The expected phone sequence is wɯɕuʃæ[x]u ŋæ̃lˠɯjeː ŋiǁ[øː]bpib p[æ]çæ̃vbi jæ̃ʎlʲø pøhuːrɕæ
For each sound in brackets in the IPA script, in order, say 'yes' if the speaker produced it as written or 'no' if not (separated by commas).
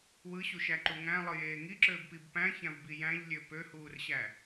no, yes, no